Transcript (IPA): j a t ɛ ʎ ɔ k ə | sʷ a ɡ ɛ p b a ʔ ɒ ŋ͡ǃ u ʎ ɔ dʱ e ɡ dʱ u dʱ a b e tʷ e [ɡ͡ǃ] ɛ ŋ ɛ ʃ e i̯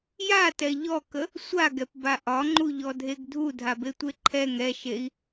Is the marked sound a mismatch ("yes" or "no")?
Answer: yes